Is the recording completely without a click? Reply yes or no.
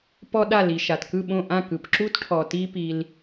no